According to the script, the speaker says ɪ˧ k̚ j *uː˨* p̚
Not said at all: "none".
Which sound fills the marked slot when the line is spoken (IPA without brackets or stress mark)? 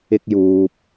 uː˨